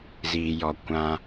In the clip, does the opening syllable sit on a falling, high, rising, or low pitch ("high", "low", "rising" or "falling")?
low